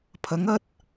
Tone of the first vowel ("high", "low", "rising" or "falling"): rising